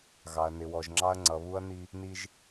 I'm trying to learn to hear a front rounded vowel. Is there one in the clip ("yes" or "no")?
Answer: no